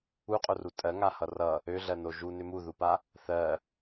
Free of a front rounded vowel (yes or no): no